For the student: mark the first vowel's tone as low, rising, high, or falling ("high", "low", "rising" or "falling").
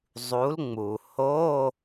rising